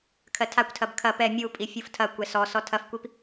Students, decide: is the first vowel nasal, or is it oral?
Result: oral